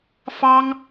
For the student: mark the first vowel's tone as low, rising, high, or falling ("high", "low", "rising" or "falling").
high